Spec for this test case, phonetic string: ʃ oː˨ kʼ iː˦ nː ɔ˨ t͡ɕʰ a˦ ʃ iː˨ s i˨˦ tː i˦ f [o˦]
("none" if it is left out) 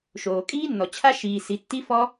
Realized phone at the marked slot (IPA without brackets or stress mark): ɔ˦